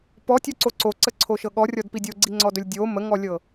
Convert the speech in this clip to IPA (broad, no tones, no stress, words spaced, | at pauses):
pɔtʲɔǀo ǀoǀəǀʰoʃɤ ɠɔrʲɔdpi dʲoɡ͡ǀiŋ͡ǀɔdɵlʲ dʲo məŋɔlʲɤ